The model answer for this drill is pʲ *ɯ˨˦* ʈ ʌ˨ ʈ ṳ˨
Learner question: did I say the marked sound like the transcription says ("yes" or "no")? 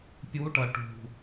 no